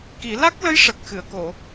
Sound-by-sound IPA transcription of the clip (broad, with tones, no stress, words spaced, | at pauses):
ki˨˩˦ la˦˥k̚lə˧˥j ʂə˨˩k̚xɨ˨˩˨ə̯ko˨˩˨